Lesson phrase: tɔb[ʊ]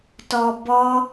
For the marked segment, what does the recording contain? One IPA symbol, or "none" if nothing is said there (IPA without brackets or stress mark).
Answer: ɔ